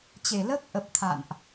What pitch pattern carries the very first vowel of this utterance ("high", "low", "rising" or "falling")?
low